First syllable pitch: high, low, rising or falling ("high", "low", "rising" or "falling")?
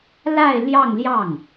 falling